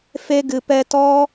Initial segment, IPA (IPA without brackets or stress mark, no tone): f